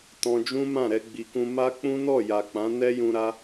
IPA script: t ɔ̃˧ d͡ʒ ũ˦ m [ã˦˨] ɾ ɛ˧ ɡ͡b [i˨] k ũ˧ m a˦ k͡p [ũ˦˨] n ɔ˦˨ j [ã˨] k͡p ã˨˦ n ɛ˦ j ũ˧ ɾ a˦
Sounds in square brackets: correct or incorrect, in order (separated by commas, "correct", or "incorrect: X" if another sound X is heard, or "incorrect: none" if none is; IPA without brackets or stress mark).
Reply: correct, correct, incorrect: ũ˦, incorrect: a˨